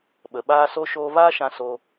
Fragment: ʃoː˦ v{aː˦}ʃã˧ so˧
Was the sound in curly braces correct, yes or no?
yes